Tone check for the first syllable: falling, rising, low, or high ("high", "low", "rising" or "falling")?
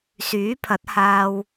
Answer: rising